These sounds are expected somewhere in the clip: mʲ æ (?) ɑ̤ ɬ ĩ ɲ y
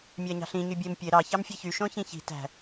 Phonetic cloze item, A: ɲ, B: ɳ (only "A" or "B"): A